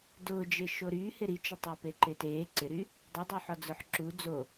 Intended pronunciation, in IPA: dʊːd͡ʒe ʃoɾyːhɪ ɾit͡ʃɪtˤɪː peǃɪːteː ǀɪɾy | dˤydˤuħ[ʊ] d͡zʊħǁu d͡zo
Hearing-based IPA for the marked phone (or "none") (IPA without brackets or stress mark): ɔ